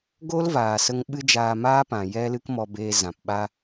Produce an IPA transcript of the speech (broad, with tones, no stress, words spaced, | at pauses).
ɡo˦lvaː˨sə˧ŋ ɓɨ˦d͡ʒaː˧maː˦pã˨ jɛ˦ lɨ˦kmɔ˧beː˧ zã˨pɓa˦